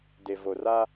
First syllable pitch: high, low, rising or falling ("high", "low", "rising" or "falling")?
low